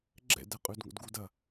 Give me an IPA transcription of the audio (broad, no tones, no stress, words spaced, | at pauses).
ɡ͡ǁɛ̰dɛ qʼʉdŋo̰dɡud ɐ